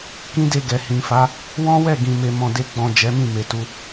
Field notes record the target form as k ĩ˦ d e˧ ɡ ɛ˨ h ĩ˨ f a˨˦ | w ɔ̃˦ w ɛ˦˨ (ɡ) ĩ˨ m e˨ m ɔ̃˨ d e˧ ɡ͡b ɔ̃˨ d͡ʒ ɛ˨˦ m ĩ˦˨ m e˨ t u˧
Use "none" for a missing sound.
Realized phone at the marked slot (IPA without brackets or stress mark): ɡ